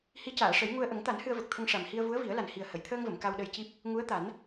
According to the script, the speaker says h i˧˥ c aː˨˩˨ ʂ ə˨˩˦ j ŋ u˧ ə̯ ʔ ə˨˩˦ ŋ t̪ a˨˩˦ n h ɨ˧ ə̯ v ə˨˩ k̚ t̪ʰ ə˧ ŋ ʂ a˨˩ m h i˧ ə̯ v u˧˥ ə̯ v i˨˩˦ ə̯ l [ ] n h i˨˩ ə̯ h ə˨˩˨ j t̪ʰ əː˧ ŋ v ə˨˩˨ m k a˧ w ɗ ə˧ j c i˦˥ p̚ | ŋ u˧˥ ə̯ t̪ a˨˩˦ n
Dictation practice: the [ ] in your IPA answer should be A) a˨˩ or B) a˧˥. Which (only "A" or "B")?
A